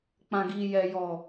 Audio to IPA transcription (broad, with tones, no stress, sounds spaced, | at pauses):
k͡p ã˨ ɡ i˨ j ɛ˨ j ɔ˨